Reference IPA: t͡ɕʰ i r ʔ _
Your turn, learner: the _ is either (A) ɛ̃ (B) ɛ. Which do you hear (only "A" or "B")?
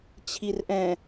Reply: A